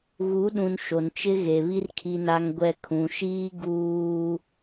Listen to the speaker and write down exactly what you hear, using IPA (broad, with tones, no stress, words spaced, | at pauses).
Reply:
ɣu˨˦ɗũ˨n ʃo˨nt͡ʃɪ˦ɣe˨βi˦r kʰi˨na˨ŋɡʷɛ˨ kʰũ˨ʃiː˦ ɡuː˦